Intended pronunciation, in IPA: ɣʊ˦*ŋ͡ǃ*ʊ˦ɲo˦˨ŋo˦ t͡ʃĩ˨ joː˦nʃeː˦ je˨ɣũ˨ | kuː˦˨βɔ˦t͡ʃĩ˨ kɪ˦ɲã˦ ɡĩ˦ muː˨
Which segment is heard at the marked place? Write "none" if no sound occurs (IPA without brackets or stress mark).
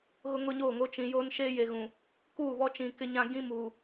ŋ